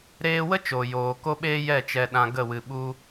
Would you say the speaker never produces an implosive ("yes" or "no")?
no